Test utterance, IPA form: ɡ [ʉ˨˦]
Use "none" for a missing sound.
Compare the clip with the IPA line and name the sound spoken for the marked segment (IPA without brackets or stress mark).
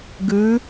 ʉ˨˦